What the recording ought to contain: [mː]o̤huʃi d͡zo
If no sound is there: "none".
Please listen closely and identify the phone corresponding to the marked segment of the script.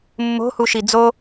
mː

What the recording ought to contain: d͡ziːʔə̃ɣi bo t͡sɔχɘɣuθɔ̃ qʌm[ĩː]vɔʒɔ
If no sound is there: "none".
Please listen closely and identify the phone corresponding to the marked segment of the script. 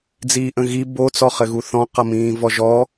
ĩː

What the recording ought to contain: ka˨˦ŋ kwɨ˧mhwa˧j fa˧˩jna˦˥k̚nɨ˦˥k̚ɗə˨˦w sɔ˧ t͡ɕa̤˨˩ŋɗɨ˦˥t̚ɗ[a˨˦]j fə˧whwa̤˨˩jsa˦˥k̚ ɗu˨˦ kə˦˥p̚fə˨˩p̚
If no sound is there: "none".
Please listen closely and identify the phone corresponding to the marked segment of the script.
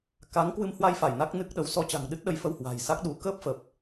ə˨˦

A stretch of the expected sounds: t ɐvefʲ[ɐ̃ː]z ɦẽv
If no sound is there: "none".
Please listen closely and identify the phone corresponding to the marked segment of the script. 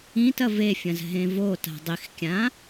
ɐ̃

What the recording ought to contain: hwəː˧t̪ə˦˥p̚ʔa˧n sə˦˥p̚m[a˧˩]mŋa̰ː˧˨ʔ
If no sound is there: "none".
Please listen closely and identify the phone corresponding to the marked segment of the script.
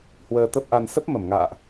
ə˧˩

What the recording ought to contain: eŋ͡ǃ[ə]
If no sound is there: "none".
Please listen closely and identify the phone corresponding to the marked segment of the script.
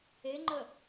ə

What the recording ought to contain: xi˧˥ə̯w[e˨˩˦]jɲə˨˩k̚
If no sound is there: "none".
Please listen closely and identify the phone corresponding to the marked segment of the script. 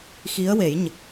e˨˩˦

